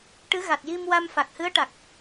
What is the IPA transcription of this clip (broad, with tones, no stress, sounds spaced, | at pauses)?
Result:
ʈ ɨ˧˥ ɣ a˨˩ t̚ j i˧ m w a˧ m f a˨˩ k̚ h ɨ˧˥ ə̯ ʈ a˨˩ k̚